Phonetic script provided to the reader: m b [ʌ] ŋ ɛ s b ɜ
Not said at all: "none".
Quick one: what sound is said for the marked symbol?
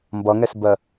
ʌ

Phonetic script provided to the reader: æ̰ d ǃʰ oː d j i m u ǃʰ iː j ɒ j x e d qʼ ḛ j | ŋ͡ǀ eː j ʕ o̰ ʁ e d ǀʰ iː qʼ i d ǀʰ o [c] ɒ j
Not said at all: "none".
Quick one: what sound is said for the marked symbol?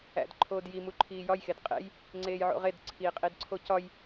c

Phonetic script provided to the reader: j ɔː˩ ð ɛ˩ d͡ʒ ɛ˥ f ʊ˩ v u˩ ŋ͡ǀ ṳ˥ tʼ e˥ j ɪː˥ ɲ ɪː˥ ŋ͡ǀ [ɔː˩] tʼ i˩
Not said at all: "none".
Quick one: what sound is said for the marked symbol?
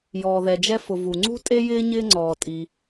ɔː˩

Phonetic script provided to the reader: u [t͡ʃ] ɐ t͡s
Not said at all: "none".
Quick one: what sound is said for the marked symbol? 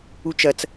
t͡ʃ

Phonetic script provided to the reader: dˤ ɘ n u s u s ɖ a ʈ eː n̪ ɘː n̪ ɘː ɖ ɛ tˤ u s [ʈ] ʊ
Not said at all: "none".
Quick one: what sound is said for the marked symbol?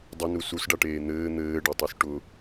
ʈ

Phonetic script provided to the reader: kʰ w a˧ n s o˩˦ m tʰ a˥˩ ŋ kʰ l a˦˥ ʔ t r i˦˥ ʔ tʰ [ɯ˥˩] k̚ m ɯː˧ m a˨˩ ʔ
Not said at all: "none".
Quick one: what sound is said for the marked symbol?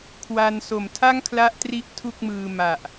u˥˩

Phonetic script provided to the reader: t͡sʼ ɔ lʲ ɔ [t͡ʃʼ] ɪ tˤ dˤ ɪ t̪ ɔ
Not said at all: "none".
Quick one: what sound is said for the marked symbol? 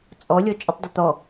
t͡ʃʼ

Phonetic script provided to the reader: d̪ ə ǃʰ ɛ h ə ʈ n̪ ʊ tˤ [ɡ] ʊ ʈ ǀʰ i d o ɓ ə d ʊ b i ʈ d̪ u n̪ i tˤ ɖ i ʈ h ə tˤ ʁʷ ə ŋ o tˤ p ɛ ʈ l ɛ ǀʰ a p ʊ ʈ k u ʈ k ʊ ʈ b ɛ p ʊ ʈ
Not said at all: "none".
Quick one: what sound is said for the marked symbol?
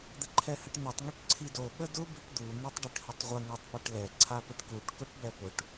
ŋ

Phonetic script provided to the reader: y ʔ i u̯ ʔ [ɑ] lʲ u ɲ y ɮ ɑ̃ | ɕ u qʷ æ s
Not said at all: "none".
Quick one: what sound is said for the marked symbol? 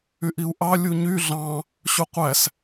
ɑ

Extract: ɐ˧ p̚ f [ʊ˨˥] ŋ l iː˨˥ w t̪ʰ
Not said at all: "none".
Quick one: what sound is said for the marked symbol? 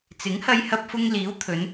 ʊ˧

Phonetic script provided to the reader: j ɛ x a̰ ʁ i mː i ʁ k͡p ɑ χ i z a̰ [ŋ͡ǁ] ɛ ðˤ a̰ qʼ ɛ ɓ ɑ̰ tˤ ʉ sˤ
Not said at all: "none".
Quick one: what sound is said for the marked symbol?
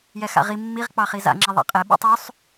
ŋ͡ǁ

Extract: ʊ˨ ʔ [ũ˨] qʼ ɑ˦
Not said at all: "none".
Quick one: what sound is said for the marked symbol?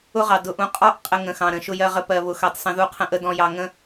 ũ˨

